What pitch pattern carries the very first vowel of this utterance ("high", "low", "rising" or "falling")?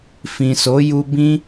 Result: low